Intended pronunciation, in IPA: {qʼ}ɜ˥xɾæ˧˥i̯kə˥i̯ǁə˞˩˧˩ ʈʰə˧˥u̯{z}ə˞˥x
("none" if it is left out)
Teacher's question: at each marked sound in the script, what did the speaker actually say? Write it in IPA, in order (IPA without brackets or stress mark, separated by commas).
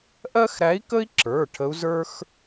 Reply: ʔ, z